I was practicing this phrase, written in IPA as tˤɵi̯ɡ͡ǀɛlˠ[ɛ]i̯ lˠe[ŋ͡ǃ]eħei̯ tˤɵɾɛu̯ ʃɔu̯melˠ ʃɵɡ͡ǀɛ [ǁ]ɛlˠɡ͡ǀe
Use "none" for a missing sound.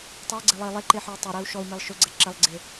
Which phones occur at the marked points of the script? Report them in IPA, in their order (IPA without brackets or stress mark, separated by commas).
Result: e, ǃ, ǁ